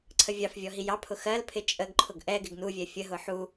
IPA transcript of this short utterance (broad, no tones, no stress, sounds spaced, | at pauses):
ǀʰ ə vʲ ɑ f vʲ ɔ ɦ i j ɑ pʰ ʊ x ɜ l pʰ ɪ t͡ʃʼ ə ɡ ǃʰ ʊ ɡ ʔ ɛ ɡ ɪ ɡ n u vʲ ɛ fʲ ə ɦ ʊ ħ u